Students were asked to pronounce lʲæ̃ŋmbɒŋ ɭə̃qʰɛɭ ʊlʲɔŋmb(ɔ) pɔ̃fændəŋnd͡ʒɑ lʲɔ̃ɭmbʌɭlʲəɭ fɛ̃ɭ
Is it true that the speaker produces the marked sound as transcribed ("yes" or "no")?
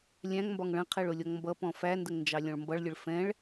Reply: no